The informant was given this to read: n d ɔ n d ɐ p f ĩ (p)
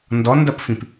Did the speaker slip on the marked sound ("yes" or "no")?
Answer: no